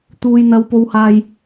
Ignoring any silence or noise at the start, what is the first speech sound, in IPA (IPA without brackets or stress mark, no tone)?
t̪